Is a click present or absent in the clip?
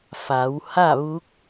absent